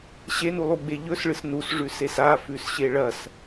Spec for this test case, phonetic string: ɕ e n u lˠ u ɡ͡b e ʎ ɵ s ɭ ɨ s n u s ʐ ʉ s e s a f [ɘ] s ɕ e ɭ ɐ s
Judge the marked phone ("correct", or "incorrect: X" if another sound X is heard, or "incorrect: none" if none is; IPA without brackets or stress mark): incorrect: ʉ